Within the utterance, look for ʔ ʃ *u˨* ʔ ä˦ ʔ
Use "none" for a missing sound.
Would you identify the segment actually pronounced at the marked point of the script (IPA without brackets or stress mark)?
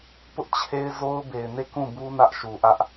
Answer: u˨